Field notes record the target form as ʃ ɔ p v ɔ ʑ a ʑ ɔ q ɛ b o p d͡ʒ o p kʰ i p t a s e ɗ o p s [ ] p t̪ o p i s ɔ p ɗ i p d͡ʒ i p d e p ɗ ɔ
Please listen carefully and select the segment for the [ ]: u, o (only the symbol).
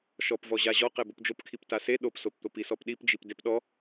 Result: o